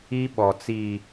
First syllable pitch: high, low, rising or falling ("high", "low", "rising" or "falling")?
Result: high